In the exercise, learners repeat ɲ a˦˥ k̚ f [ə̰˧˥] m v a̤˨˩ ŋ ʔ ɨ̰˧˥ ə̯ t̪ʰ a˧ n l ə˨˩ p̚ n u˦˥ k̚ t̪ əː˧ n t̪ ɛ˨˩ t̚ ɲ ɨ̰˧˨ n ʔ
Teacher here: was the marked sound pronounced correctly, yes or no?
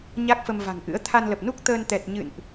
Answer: no